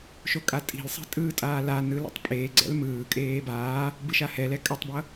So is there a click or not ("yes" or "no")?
yes